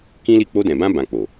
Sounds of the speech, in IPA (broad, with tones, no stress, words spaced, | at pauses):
kĩ˦li˦˨ k͡po˧dɛ̃˨bã˧bã˨ k͡po˨